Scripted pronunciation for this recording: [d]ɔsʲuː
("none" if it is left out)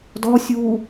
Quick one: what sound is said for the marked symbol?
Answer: d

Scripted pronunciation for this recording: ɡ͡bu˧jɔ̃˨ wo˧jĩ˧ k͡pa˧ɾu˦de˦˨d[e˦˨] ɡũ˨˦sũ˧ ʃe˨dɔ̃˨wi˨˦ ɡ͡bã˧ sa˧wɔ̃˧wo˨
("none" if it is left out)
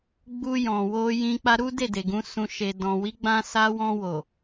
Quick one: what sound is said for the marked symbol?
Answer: e˨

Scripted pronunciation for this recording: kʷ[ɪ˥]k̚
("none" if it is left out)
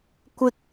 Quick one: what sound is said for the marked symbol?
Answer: ɪ˥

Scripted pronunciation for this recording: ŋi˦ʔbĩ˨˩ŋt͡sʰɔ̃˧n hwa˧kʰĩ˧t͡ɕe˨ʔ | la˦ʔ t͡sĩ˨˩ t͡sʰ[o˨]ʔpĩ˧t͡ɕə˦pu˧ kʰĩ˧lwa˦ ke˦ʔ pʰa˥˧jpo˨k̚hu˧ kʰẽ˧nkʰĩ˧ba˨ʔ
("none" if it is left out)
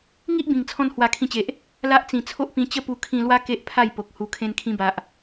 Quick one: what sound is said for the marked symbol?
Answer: o˦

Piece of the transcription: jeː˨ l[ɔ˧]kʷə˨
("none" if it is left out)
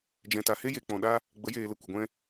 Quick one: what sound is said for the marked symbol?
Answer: ə˧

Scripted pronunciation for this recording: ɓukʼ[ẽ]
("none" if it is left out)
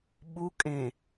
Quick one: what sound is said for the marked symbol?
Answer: ẽ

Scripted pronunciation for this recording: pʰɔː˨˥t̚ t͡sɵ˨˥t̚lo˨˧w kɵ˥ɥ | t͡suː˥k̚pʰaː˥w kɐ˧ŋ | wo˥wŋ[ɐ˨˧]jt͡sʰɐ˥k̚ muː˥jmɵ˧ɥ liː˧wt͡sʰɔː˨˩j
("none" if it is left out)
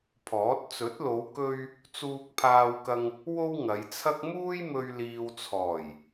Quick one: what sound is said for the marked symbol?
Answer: ɐ˨˧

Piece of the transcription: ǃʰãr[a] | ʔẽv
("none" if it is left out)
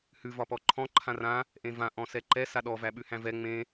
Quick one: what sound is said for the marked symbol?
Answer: ã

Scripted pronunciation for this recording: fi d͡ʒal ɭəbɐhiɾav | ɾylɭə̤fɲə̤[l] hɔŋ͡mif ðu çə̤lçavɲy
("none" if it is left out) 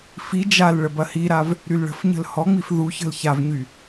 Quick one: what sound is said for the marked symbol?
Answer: l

